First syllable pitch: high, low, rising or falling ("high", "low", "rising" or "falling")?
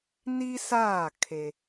high